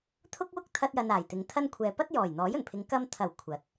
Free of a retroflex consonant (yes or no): yes